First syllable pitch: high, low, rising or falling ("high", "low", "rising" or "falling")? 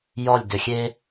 falling